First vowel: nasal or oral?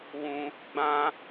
nasal